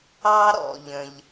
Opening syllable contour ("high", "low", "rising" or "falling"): high